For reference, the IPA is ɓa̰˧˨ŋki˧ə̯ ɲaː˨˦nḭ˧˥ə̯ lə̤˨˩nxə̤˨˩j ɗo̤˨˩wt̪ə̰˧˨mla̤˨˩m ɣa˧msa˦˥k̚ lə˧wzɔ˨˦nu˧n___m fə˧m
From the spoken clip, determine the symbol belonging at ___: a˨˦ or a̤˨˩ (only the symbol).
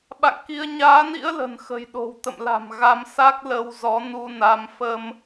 a˨˦